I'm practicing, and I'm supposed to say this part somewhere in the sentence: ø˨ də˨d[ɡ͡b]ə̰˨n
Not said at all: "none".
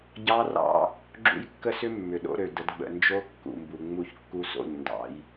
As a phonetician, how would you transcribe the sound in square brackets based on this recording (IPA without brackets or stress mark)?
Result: ɡ͡b